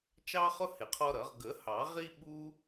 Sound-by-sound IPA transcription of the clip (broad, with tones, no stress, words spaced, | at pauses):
t͡ʃɑ˦χʊ˦ hɪ˨˩˦qʰɔ˦ɾʌ˨˩˦ʁ ɡə˨˩˦hɑ˨˩˦ ʁi˦ɓu˦